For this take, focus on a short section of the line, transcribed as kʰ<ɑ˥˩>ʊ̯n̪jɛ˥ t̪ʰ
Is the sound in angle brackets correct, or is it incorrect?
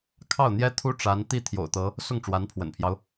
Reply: correct